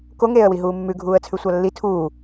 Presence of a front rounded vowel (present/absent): absent